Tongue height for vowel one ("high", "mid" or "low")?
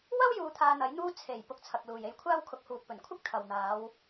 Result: low